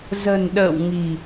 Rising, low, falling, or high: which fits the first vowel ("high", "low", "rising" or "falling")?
low